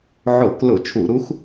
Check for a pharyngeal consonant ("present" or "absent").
present